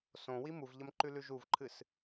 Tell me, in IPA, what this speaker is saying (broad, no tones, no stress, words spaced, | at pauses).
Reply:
sõ wimuvʎɐm ǃʉlʉʒuvǃʰɨs